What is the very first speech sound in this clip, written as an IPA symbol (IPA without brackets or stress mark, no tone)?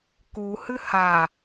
k